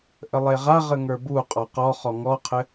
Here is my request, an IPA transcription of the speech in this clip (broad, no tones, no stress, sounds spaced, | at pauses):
ʔ ə lˠ e ʁ a ʁ ə ŋ ə˞ b u qʼ ɒ q ɔ χ ɔ ŋ ɔ qʰ ɘ